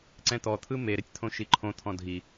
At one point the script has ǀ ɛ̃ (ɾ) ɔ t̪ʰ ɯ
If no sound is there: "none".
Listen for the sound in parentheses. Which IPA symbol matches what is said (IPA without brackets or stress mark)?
t̪